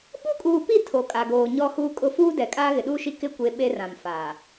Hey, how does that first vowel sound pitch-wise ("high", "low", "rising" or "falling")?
high